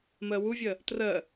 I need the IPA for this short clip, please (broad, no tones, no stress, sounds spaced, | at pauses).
m ɜ w u vʲ ɜ | t r ɜ